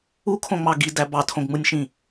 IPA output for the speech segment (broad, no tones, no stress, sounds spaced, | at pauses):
u kʰ õ ŋ͡m ɑ ɡ i d æ b ɑ tʰ õ ɡ ŋ͡m ɯ nʲ ʃ ĩ